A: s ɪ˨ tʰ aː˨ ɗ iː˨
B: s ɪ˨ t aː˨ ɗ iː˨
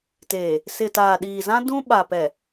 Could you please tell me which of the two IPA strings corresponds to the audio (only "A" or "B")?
B